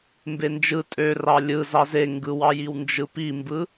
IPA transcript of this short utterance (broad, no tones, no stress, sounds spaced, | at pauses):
m b e n d͡ʒ ɯ tʼ ø r ɑ lʲ ɯ z ɑ z e ŋ ɡ ɯ w ɑ j i w n d͡ʒ ɯ p i m b ɯ